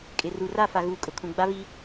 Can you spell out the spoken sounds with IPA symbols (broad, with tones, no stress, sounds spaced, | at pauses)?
kʼ ɪ˨ r u˨ r a˦˨ f a˨ ɣ uː˨ kʼ ʊ˨ kʰ ũ˨ ɡ͡b a˦ β i˦